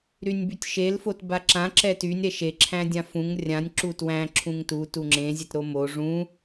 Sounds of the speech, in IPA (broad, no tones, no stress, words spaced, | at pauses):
ɾynʲbytʲʃel fotbaǁã ǁɛtynʲ ɾɛʃe ǁʰæ̃dʲãfũŋ rʲãnʲ ǁutwæ̃ ǁʰũŋtu tuŋ͡ǁẽ zʲetɾomo ʐũ